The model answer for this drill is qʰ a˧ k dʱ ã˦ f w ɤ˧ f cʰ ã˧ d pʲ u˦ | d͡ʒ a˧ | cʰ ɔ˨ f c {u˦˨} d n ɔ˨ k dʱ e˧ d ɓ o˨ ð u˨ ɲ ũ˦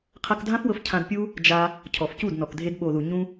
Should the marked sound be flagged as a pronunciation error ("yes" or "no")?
no